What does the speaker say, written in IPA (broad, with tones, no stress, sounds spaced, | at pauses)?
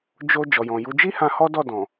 d͡ʒ o˧ d͡ʒ ɔ˨ j ɔ̃˨ j u˨˦ d͡ʒ i˦ h ã˧ h ɔ˦ d ɔ˦˨ d ɔ̃˨